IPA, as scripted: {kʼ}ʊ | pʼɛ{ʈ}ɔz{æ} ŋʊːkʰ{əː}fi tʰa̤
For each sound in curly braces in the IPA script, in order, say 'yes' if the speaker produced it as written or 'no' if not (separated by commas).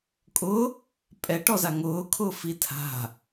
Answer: yes, yes, no, no